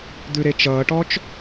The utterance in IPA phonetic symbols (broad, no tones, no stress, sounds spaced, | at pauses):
d̪ ʉ ɾ e t͡ʃ ʌː ʈ ɔ t͡ʃ